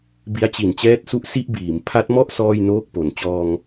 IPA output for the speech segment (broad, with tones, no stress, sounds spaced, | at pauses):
b i˦˥ a̯ t͡ɕ i˨˩ n t͡ɕ ɛː˦˥ t̚ s u˦˥ ʔ s i˥˩ ʔ b iː˩˦ m pʰ a˦˥ t̚ m ɔ˥˩ ʔ s ɔː˥˩ j n oː˥˩ k̚ p o˩˦ n t͡ɕ ɔː˧ ŋ